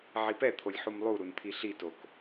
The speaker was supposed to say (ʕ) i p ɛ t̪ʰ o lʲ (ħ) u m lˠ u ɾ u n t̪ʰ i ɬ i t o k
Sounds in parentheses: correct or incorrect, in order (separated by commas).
correct, correct